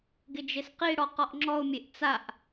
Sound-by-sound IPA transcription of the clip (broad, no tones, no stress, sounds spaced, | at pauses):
ɡ ɪ d͡ʒ e s q i ɽ ɔ q ɔ ʔ ŋ͡ǁ ɔ ʊ̯ mʲ e ʔ t͡s a ʔ